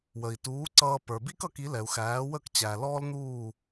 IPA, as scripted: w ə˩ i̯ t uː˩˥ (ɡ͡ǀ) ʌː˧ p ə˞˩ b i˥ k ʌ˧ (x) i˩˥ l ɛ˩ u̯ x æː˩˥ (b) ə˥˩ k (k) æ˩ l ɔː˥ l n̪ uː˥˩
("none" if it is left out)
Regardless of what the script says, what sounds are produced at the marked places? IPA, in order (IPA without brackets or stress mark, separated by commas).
ǀ, k, w, t͡ɕ